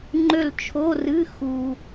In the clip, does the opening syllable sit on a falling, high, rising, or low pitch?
falling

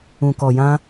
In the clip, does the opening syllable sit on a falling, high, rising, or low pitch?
low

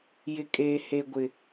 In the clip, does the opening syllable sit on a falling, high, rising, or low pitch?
low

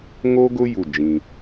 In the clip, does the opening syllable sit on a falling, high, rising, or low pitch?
high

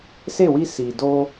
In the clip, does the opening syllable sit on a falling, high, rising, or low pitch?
falling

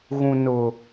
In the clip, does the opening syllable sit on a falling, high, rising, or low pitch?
low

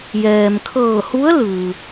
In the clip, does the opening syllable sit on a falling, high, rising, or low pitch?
low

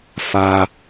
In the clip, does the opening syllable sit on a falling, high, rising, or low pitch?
high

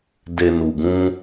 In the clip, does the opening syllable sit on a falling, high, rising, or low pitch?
low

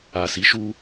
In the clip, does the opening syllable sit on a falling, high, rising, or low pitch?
low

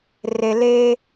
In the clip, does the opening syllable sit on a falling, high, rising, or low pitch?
low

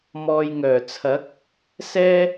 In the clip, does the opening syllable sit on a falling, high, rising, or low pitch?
low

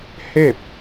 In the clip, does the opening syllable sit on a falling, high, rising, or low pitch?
falling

